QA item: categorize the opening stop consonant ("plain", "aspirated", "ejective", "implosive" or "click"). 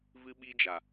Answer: implosive